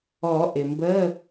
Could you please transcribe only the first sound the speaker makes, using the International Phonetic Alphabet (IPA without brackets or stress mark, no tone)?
ɔ